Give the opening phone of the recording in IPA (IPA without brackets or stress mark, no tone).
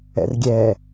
ɛ̰